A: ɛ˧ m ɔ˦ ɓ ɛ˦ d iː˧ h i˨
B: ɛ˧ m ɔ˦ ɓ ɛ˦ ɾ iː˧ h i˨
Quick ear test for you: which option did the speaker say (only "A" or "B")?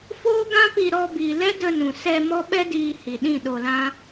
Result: A